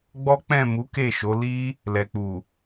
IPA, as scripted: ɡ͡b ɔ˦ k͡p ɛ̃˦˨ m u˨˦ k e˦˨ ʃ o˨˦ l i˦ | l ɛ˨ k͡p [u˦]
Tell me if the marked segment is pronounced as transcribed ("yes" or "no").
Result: no